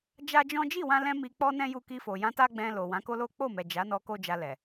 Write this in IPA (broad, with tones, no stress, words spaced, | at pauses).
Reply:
d͡ʒa˦d͡ʒɔ̃˦ d͡ʒi˦˨wã˧lɛ̃˧ mi˧k͡pɔ˦nɛ̃˦ju˧ ki˧fo˨ jã˧ta˦ɡ͡bɛ̃˧ lo˨ wã˨˦ko˦lo˦ k͡po˦˨mɛ˨ d͡ʒa˨˦nɔ˧ ko˦d͡ʒa˧lɛ˨